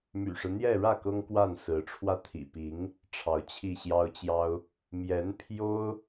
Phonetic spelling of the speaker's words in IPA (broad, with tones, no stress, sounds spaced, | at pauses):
m y̰˨˩ ʂ ɻ̩˦ n̪ j ɛ˥˧ ɻ ä˥˩ k ɤ˥ ŋ k w a˥˩ n s ɹ̩˧˥ ʈ͡ʂʰ w ä˥˩ t̪ʰ ḭ˨˩ p i˧˥ ŋ | ʈ͡ʂʰ ɑ˧˥ ʊ̯ t͡ɕʰ i˥˩ ɕ j ɑ˥ ʊ̯ t͡ɕ j ɑ˥ ʊ̯ | m j ɛ˧˥ n pʰ j o˥ ʊ̯